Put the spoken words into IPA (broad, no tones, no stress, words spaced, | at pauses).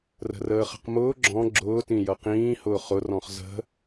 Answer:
rə̤rəːχə̤qmʊː ɡ͡ǁɔ̃ ɡ͡ǁʊː tĩjʌqĩː hʊːχʊ rɔ̃χzə̤